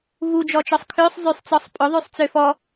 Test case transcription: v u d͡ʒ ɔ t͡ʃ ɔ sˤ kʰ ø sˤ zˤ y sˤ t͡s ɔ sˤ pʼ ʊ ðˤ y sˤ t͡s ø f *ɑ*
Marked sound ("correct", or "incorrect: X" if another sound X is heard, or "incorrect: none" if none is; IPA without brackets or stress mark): incorrect: ɔ